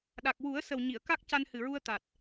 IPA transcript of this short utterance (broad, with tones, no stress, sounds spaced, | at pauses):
ɗ a˨˩ k̚ w u˨˩˦ ə̯ s ə˨˩ w ɲ i˨˩˨ ə̯ k a˦˥ k̚ c a˧ n h ɨ˨˩ ɹ u˧ ə̯ t̪ a˨˩ t̚